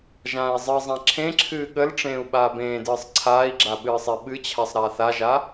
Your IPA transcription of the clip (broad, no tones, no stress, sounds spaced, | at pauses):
ʒ ãː i̯ zˤ ɨ zˤ ã ǁʰ ẽ ǁʰ ɨː ɠ ə l ʈ͡ʂ ẽː u̯ ɓ aː b ẽː d ɨː sˤ ǀʰ aː i̯ ɡ͡ǁ a ɓ ɨː sˤ e ɓ ɨ t͡ɕʰ a sˤ ɾ aː θ a ʒ a